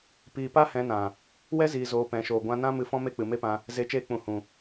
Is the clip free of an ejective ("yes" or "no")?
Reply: yes